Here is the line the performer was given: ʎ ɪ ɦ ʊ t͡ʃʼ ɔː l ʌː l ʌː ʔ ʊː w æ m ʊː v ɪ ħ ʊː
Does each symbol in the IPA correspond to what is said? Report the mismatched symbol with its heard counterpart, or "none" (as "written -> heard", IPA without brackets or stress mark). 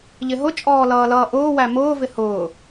ħ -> h